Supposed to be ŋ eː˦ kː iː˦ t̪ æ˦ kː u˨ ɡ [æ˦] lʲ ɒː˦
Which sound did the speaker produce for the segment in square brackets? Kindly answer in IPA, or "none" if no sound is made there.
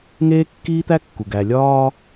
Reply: æ˨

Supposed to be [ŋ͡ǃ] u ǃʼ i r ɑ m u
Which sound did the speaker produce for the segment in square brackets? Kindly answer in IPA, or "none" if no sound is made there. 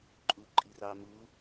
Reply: ǃʼ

